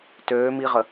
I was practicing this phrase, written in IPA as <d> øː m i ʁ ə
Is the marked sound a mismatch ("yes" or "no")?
yes